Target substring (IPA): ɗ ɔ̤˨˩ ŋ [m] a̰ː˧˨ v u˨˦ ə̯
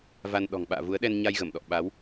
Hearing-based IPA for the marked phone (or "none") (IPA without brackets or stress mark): ɓ